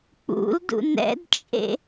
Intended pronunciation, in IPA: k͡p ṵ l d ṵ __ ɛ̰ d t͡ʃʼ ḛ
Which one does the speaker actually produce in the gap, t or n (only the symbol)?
n